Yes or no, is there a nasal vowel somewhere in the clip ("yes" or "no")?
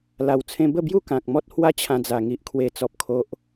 yes